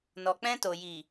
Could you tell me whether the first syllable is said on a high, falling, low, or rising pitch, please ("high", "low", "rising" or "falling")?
low